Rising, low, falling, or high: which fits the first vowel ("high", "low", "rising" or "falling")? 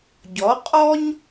rising